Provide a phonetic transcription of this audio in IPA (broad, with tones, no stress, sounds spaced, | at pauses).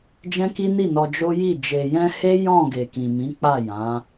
d͡ʒ ɛ̃˦ k i˦ n i˦˨ n ɔ˧ d͡ʒ o˦ j i˦˨ d͡ʒ e˨ j ɛ̃˧ h e˦ j ɔ̃˦˨ ɡ e˨ k ĩ˨ m ĩ˨˦ k͡p a˦˨ j ã˨˦